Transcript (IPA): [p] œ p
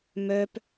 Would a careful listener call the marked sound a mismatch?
yes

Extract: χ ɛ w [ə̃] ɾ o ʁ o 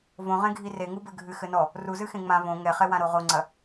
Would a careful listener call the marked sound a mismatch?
yes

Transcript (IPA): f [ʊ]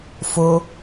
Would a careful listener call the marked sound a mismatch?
no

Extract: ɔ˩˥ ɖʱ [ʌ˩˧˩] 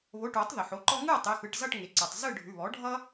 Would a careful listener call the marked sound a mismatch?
yes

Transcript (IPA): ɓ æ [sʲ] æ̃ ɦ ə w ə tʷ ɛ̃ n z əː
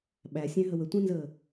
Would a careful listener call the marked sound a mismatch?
no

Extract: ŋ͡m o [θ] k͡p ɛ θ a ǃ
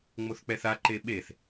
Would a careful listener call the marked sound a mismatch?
no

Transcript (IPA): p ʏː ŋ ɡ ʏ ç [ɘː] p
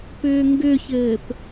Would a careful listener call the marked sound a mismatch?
no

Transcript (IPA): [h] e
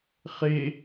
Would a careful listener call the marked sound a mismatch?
yes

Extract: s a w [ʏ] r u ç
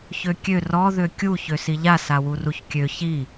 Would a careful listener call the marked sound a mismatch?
yes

